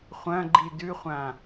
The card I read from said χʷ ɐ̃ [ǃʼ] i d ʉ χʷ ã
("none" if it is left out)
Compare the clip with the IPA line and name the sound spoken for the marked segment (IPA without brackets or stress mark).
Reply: ɡ͡ǃ